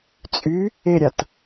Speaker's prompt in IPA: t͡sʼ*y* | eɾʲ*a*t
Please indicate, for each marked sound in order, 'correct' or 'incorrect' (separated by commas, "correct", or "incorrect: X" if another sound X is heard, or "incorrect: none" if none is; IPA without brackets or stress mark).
correct, correct